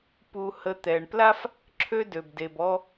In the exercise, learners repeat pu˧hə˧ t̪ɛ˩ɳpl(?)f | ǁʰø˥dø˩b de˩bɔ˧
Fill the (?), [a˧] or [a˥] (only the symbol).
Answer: a˥